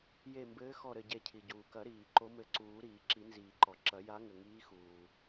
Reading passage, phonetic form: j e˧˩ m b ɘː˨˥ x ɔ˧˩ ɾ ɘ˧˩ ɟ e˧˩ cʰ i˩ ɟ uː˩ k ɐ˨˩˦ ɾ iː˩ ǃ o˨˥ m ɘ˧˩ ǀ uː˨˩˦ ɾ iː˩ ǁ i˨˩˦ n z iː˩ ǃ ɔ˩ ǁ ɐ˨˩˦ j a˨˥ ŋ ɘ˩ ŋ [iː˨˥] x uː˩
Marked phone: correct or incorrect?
correct